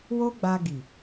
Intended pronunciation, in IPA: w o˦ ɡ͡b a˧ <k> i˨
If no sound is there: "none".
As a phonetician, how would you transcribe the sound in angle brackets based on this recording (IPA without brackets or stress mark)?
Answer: ɡ